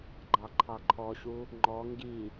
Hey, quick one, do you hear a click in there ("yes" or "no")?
yes